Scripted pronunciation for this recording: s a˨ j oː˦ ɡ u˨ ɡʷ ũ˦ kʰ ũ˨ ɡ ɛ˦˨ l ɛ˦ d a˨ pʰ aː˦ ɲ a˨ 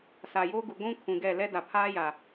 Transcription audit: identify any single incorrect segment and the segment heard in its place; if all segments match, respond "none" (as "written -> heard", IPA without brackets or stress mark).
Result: ɲ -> j